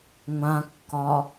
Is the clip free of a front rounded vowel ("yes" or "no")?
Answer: yes